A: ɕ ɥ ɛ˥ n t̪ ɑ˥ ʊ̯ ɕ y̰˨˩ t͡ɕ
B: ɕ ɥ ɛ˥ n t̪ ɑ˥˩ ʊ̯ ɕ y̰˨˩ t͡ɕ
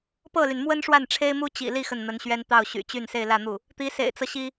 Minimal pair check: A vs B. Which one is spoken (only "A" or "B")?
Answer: B